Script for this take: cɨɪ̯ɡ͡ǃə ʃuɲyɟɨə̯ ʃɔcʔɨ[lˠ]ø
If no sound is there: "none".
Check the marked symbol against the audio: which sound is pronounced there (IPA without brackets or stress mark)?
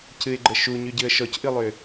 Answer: lˠ